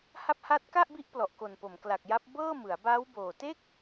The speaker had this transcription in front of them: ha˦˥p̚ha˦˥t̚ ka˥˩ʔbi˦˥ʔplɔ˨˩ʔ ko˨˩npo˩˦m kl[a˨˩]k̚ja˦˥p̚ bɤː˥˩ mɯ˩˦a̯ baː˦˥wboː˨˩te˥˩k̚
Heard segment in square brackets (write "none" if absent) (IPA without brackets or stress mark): a˨˩